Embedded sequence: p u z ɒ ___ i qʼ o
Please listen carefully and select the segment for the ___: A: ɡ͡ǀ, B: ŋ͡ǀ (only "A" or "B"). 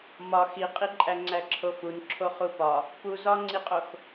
B